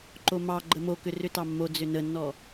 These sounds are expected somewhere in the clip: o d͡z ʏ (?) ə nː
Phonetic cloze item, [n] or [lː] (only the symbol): n